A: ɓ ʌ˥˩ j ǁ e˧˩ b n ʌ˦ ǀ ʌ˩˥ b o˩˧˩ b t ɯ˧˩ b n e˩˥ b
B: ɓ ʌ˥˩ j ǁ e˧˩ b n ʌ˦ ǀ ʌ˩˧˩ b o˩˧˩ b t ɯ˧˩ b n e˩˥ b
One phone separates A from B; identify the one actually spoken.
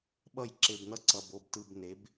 B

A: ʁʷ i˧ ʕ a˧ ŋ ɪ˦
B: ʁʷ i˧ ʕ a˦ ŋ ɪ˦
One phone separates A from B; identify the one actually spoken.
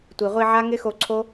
B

